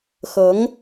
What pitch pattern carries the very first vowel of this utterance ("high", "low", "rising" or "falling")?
rising